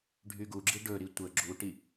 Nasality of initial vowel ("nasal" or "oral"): oral